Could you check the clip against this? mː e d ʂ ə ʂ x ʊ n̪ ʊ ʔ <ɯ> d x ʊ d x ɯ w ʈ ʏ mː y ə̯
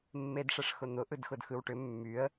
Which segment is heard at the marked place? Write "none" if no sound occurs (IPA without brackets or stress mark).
ɯ